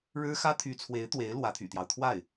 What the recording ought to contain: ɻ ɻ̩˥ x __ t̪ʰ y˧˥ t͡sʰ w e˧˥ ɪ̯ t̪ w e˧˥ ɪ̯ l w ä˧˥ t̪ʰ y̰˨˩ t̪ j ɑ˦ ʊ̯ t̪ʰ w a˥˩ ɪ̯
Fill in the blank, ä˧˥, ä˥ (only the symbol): ä˥